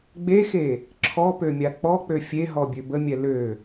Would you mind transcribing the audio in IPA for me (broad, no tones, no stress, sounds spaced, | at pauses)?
ɡ͡b e x e | ǁʰ ɔ p ø mʲ a k͡p ɔ k͡p ø fʲ e ɦ ɔ bʲ ø b ə mʲ ɛ l ø